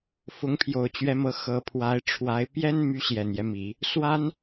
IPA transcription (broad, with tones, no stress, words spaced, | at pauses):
fʊ˧˥ŋpʰjo˨˩ʊ̯t͡ɕɥɛ˧˥mɤ˧˥ xɤ˧˥pʰwa˧˥ɪ̯ʈ͡ʂʰwa˧˥ɪ̯ pjɛ˥nmy˧˥ ɕjɛ˨˩njɛ˦mi˨˩˦ | swa˥n